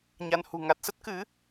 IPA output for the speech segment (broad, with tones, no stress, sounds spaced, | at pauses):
ɲ a˧ n h ṳ˨˩ ŋ a˨˩ t̚ s ə˦˥ t̚ k ɨ˨˦